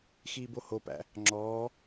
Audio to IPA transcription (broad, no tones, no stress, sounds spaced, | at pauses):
x iː b o h o p æ̰ | ŋ͡ǁ ɔː